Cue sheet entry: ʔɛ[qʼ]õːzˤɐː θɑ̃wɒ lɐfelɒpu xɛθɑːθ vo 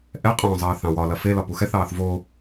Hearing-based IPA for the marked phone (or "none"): qʼ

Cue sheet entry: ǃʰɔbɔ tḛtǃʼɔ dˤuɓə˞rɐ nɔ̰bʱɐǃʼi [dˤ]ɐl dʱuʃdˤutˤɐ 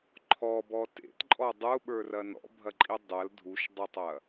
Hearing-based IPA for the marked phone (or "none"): dˤ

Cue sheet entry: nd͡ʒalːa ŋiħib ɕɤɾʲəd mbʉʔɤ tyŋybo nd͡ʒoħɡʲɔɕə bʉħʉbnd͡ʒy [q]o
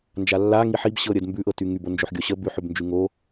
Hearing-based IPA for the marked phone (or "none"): ŋ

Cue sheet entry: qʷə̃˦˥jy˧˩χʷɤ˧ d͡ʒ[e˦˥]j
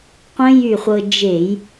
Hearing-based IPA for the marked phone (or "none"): e˧˩˧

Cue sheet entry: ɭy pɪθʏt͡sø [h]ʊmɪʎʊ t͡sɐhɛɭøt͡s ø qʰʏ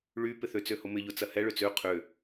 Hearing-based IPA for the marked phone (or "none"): h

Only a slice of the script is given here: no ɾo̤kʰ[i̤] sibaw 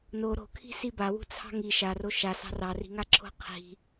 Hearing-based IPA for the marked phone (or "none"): i̤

